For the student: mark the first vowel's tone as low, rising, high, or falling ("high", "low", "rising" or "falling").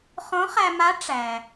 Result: rising